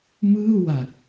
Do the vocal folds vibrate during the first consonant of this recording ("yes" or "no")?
yes